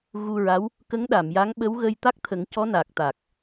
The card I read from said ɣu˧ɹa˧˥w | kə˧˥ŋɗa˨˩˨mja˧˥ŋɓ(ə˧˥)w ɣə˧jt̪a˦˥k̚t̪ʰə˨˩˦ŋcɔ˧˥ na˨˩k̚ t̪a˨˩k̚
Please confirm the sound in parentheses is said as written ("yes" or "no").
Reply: yes